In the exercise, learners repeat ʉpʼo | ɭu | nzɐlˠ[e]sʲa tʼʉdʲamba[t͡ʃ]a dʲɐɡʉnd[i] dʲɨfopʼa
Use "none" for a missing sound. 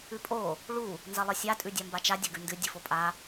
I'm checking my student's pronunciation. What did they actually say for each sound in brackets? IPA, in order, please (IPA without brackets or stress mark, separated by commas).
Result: ɨ, t͡ʃ, ɨ